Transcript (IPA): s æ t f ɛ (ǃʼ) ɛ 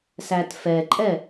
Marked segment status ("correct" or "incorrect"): correct